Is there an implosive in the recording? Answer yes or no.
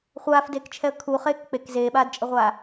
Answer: yes